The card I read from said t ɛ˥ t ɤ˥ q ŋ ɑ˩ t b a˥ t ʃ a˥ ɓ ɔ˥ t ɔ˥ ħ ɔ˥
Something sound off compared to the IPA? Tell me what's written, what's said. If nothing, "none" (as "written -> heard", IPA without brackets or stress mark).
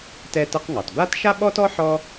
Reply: none